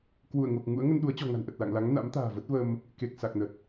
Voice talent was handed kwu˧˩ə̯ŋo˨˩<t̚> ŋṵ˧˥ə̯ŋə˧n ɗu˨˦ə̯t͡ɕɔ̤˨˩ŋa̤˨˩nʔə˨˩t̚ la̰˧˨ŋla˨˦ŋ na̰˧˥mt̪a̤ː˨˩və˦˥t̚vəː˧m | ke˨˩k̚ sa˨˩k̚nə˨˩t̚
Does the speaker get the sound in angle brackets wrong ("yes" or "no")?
yes